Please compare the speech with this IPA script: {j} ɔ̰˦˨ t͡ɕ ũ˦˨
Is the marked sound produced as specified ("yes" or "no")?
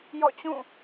yes